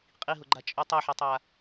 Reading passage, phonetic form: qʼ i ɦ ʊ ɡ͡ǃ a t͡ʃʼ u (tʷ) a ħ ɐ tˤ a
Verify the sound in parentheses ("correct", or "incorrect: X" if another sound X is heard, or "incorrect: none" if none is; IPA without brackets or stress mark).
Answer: incorrect: tˤ